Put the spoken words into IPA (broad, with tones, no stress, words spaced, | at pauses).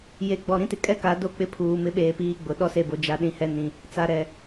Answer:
je˨ɡ͡bɔ˨ɾĩ˦tɪ˨ kʼɛ˦ka˨˦do˦˨ k͡pɪ˦pʰuː˨ mɪ˦ɓeː˨piː˦ ɡ͡bʊ˨ ɗɔ˦se˨bo˨ d͡ʒa˨ɗĩ˨hɛ˨ nĩ˨ | t͡sa˨ɾɛ˨